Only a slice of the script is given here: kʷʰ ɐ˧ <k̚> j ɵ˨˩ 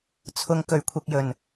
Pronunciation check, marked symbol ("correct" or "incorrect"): correct